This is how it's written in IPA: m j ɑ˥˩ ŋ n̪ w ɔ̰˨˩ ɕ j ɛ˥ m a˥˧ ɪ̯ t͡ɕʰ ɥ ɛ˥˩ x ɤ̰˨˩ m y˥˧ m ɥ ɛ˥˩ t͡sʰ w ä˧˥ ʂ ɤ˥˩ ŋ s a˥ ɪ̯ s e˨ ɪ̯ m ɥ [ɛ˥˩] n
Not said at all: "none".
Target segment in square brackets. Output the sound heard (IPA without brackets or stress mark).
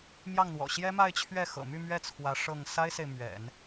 ɛ̰˨˩˦